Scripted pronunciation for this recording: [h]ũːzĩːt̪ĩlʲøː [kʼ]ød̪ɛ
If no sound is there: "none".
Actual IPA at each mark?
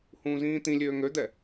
h, ŋ

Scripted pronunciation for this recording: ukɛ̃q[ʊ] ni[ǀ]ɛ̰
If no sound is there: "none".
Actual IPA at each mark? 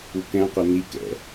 ʊ, k

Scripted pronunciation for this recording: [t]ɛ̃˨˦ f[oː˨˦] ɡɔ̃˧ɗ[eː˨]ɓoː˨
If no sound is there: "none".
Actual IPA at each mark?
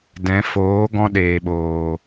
d, oː˨˦, eː˨

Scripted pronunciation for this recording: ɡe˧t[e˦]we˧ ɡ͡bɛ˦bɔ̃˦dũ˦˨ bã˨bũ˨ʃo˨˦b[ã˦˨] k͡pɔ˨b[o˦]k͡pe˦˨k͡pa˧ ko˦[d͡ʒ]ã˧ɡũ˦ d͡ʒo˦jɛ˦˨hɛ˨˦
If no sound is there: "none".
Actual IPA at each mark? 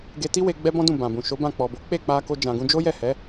i˦, ã˦˨, o˨˦, d͡ʒ

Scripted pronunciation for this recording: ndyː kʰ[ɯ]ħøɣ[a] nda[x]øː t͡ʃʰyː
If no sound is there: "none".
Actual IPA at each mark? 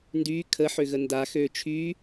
ə, ə, x

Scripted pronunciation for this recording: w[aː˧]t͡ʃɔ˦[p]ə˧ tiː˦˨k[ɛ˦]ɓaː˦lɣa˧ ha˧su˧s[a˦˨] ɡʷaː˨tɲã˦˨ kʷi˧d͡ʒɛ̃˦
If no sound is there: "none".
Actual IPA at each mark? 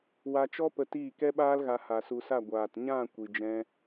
a˧, p, ɛ˦, a˦˨

